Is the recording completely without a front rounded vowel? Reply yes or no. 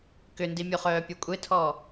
no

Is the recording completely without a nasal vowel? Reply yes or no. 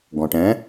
no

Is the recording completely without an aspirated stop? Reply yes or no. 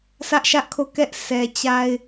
no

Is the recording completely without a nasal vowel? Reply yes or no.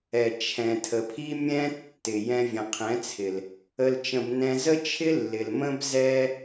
no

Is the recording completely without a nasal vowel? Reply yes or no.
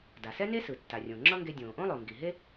no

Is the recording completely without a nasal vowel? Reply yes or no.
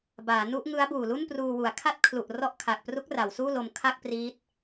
yes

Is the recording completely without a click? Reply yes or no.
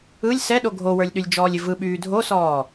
yes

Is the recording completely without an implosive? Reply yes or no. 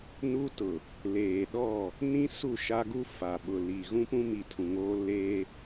no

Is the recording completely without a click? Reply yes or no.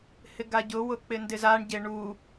yes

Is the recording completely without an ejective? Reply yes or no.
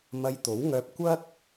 yes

